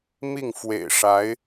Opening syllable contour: falling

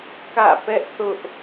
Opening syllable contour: falling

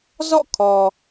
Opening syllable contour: falling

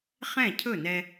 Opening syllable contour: falling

